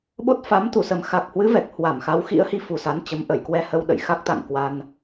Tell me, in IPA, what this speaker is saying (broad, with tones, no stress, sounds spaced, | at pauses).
ɓ o˦˥ t̚ f a˨˦ m t̪ u˧˩ s ə˨˩ m x a˨˩ k̚ h w ɨ˨˦ v ɛ˨˩ k̚ h w a˧˩ m x a˨˦ w x ḭ˧˥ ə̯ h i˨˦ f u˨˩ s a˨˦ n t͡ɕ ə˨˦ m ʔ ə˧˩ j k w ɛ˧ h ə˧ w ɗ ə̰˧˨ j x a˦˥ k̚ t̪ a̰˧˨ ŋ k w a˧ n